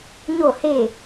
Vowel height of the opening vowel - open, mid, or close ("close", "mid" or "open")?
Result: mid